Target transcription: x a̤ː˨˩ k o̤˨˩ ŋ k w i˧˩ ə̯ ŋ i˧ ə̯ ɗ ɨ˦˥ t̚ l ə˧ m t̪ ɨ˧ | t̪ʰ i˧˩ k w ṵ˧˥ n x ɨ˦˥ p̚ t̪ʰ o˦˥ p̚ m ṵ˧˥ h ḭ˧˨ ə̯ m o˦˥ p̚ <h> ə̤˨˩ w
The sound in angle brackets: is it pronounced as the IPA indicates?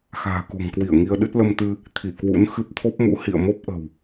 no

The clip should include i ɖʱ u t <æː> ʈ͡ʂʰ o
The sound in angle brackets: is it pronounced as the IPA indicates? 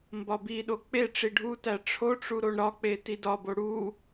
no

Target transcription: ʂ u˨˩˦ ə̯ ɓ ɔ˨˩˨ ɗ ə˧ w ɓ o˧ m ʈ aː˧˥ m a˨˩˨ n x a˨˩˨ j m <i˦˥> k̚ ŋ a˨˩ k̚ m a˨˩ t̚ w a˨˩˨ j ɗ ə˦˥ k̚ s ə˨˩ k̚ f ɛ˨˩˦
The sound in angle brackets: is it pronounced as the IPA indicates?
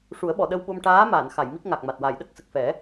yes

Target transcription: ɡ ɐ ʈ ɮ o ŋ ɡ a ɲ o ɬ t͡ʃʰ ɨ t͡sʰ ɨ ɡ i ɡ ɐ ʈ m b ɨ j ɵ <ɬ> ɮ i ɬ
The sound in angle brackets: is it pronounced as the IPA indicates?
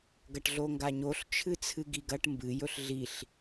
yes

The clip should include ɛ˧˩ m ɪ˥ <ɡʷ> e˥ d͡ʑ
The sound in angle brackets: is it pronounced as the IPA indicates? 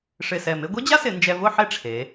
yes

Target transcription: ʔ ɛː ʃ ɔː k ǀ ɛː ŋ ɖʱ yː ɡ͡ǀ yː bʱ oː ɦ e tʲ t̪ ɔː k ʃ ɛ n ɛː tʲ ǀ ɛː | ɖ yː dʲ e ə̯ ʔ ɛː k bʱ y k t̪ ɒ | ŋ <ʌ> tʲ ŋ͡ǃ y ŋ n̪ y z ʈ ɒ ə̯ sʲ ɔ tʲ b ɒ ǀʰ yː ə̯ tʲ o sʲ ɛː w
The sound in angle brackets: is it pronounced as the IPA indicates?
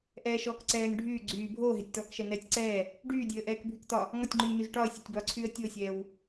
no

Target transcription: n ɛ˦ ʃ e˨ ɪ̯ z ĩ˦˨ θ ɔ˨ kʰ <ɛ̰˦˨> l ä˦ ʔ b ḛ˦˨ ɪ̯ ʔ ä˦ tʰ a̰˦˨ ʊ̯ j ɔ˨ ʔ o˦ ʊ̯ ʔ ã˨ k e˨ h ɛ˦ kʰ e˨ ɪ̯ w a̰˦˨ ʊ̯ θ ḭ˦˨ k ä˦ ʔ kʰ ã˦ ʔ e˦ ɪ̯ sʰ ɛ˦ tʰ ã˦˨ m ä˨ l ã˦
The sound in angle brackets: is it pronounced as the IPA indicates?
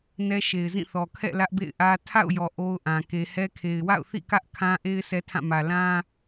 yes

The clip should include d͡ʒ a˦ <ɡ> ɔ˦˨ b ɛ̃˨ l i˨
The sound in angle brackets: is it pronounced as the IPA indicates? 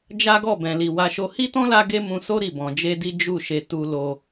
yes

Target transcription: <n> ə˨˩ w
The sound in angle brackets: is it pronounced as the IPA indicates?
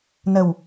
yes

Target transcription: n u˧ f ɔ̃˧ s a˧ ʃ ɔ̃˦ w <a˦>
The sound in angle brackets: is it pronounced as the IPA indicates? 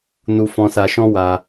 no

